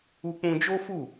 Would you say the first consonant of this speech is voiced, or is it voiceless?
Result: voiceless